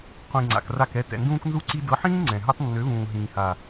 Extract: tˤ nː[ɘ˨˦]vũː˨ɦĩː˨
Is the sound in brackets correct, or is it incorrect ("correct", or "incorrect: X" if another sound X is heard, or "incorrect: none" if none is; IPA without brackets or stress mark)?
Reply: incorrect: ø˨˦